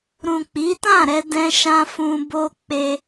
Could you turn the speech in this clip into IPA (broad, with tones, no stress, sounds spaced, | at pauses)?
ɾ ũ˨ k͡p i˨˦ t ã˦˨ ɾ ɛ˧ d ɛ̃˧ ʃ ã˧ f ũ˧ b o˦ k͡p e˦